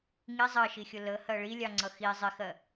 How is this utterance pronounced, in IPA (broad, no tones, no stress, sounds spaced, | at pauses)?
ŋ i zˤ ɜ ʃ i xʲ ʊ l ə h ɜ ɭ i lʲ ɑ ŋ͡ǀ ʌ x i zˤ ɪ x ɜ